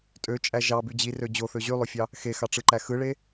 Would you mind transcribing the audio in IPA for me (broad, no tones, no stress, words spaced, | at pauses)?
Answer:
tʼøt͡ʃʼæ ʒɑby d͡ʑirø d͡ʑoθø ʑylˠofʲɑ | xexɑʈ͡ʂɯǃæ xɯɭe